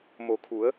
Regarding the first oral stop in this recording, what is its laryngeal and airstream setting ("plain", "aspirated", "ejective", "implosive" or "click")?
aspirated